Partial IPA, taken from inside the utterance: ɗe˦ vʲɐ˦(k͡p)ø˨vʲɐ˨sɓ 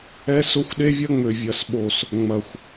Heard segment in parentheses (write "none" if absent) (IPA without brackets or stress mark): ŋ͡m